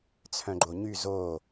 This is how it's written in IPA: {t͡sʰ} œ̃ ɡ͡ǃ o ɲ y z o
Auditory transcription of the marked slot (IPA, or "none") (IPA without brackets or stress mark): t͡sʰ